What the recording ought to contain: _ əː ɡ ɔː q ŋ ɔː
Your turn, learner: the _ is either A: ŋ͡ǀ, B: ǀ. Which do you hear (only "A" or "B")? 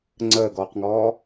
A